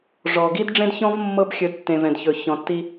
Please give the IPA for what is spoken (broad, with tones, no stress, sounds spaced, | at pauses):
ʐ ɔ˨ ɡ i˦ d ɖ͡ʐ ẽ˦ d ç ɔ̃˦ v mː ɤ˦ b xʲ ɵ˨˦ d tː ẽ˨ v ɛ̃˨ d ç ɵ˨ ç ɔ̃˨ tː i˦